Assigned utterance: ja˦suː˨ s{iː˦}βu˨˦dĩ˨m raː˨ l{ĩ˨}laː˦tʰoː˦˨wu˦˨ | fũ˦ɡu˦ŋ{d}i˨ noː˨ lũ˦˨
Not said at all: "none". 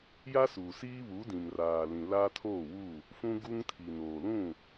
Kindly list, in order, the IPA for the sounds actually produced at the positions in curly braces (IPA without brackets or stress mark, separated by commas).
iː˦, ĩ˨, tʰ